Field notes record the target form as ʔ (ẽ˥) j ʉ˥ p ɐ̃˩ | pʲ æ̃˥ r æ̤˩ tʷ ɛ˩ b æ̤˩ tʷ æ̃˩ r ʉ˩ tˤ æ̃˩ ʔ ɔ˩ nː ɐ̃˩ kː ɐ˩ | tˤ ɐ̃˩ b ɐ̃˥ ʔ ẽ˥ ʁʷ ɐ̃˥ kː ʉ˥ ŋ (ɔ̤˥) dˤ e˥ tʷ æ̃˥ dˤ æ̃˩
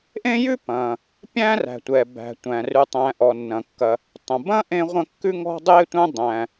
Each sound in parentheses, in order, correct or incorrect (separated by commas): correct, correct